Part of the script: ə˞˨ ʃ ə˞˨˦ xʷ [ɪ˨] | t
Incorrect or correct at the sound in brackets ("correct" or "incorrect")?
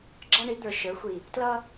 incorrect